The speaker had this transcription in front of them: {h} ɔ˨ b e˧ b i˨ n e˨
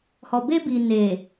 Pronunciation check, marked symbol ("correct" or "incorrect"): correct